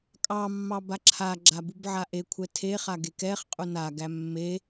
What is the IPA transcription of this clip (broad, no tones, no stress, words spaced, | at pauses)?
kʼɑmːɑ baǁʰaɡ͡ǁa bubʕaʔekʷʰɛ tʰeχa ɡekɛχqʼu naɡæ mːe